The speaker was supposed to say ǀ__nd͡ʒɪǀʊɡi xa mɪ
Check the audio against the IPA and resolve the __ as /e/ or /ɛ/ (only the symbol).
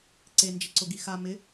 e